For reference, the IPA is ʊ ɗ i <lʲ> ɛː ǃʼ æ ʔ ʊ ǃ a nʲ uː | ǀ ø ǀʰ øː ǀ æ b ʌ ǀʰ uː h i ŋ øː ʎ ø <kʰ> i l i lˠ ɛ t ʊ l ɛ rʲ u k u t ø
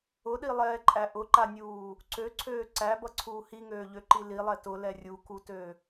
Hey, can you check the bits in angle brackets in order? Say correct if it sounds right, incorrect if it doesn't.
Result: incorrect: lˠ, incorrect: ǃ

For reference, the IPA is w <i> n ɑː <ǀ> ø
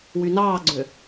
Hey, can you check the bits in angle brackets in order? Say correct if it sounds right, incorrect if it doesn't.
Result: incorrect: y, incorrect: ɡ͡ǀ

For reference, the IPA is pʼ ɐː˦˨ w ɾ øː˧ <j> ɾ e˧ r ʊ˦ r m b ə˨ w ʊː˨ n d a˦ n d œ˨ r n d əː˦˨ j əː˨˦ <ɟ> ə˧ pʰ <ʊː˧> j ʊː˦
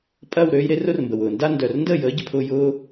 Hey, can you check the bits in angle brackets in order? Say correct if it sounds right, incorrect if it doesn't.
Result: correct, correct, incorrect: ʊː˦

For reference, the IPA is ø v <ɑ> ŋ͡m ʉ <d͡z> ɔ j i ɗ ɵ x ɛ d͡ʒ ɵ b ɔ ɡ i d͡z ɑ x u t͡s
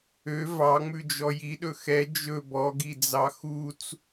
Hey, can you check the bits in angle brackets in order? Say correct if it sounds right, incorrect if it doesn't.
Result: correct, incorrect: d͡ʒ

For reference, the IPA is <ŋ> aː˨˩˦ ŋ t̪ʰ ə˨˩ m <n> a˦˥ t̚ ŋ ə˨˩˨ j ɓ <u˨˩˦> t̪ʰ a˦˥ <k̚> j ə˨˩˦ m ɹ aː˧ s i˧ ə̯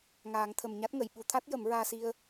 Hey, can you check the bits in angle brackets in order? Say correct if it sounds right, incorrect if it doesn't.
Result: correct, incorrect: ɲ, correct, incorrect: t̚

